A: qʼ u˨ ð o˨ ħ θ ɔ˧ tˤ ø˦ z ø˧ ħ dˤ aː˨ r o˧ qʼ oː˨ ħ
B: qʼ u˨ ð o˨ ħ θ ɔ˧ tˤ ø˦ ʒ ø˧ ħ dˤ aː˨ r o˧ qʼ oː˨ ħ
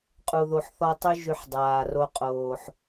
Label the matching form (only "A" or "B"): B